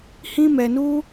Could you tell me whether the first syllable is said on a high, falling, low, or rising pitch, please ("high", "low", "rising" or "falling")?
high